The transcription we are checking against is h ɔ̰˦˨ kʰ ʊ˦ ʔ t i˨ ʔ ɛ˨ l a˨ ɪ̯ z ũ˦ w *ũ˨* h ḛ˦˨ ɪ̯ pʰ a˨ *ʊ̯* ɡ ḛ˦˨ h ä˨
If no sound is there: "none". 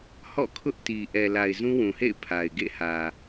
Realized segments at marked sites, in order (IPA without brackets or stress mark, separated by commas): ũ˨, ɪ̯